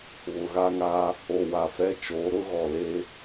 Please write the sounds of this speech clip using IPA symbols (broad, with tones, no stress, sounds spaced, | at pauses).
β ʊ˨ ɣ a˦ ŋ aː˦ | o˨ w a˨ f ɛ˦ t͡ʃ oː˨˦ ɾ ʊ˦ ɣ ɔ˨ l eː˦